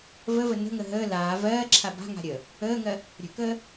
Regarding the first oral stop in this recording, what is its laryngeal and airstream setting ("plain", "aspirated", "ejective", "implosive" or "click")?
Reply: click